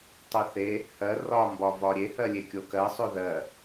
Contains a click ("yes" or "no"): no